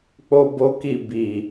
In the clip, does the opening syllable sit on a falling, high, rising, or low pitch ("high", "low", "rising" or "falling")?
high